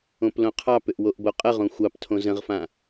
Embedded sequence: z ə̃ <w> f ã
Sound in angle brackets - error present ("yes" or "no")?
yes